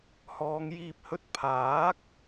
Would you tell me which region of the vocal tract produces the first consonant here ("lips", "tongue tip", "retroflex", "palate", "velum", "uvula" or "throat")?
throat